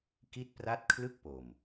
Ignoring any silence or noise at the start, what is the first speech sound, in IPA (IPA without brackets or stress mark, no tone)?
k